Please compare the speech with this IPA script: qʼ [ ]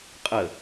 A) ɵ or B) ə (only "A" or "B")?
B